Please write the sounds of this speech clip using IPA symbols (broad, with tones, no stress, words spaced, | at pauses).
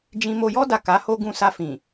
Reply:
d͡ʒĩ˧mo˧jɔ˦ da˦˨ka˨˦ho˦ɡũ˦˨ sa˧fĩ˨